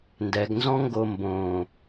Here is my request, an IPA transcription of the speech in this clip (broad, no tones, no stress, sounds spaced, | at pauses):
n d ɛ ɡ n z ɔ̃ ŋ ɡ o m b õ